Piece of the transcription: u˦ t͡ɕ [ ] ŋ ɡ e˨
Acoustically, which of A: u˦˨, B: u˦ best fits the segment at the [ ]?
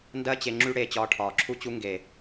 B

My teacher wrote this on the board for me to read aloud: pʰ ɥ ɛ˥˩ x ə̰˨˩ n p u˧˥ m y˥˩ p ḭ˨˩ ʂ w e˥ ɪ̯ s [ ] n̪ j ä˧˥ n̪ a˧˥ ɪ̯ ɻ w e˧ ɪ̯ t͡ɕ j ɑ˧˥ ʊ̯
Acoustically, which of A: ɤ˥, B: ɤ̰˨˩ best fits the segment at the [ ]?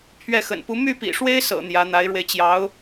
B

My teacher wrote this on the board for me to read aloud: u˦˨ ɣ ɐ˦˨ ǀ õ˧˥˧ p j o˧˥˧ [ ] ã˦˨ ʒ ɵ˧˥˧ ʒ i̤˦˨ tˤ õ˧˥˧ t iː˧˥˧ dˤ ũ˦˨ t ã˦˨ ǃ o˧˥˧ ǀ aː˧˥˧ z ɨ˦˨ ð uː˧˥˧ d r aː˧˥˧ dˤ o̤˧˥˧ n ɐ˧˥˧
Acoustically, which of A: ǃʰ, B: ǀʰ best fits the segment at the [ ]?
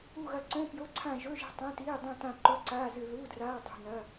B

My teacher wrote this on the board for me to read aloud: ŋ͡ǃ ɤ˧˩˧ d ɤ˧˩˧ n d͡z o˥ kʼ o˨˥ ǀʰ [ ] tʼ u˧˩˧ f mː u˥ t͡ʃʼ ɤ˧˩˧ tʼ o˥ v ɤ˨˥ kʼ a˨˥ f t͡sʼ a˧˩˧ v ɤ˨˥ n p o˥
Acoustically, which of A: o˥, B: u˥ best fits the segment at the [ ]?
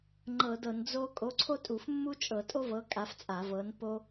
A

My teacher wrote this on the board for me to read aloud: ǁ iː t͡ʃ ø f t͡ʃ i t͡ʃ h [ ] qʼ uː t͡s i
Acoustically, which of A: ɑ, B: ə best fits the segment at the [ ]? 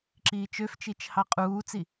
A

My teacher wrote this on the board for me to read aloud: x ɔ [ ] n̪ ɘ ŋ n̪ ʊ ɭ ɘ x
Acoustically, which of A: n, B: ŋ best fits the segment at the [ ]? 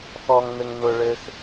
B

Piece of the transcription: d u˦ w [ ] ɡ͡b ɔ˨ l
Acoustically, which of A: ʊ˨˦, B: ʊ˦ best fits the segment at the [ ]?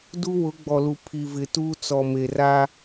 A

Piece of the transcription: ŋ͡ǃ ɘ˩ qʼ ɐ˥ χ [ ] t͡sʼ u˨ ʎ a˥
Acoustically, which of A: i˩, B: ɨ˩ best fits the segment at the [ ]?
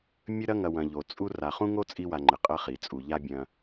A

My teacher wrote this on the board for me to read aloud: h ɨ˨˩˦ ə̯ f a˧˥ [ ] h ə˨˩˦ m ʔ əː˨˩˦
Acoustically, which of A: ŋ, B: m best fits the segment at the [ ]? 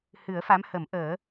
B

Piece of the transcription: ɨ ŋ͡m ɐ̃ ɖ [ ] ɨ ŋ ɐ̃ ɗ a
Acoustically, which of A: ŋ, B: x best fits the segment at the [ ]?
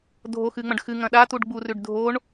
B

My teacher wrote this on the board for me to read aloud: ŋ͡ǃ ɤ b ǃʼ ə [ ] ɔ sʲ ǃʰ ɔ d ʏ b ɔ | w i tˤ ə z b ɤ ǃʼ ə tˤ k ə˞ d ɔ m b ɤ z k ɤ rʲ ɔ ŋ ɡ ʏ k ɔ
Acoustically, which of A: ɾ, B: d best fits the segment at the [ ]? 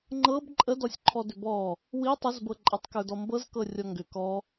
B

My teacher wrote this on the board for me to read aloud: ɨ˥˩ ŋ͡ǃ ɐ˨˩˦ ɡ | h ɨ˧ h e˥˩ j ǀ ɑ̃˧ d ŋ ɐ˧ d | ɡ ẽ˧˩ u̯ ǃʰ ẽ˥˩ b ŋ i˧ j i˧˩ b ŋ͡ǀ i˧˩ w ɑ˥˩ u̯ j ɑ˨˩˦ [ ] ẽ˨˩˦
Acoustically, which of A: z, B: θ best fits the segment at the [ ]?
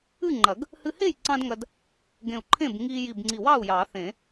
B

